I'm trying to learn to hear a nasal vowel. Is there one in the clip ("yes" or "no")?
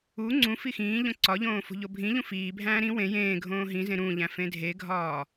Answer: yes